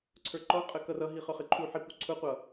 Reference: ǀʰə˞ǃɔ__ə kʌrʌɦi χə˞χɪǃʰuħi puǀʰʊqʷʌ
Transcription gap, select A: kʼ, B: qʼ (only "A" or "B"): B